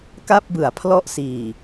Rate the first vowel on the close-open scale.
open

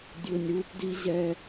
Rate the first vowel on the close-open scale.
close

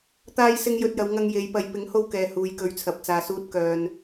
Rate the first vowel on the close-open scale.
open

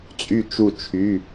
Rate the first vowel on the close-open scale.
close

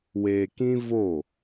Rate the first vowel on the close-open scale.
mid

